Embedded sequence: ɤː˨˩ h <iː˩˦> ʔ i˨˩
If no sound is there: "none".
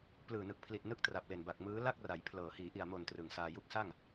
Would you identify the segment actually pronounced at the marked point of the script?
iː˩˦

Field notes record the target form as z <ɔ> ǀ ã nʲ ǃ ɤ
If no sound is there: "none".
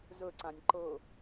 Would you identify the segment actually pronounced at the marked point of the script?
ɵ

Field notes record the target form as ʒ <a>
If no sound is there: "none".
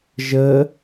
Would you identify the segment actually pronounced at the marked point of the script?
ə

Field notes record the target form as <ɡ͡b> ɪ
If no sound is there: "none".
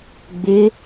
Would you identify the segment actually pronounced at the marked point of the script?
ɡ͡b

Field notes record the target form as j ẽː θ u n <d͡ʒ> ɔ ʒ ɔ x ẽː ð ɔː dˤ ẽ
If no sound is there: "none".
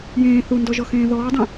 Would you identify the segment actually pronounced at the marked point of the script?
d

